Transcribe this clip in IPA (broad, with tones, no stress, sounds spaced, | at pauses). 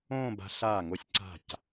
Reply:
õː˥˧ b a̤˧ ɬ aː˧˩ ŋ o˧ sʲ ǀ a̤˧˩ c